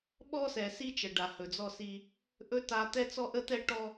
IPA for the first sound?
ɓ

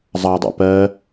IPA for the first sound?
zˤ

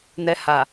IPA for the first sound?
n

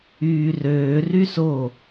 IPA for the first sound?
yː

